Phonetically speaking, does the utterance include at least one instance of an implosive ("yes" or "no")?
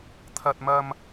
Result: no